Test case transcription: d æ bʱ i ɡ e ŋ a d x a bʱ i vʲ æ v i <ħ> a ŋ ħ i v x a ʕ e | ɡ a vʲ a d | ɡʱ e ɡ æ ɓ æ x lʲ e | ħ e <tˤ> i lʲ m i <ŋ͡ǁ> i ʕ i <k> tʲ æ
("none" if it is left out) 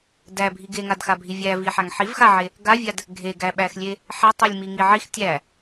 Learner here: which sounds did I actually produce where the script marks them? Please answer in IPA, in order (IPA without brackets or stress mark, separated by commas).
ħ, tˤ, ŋ, x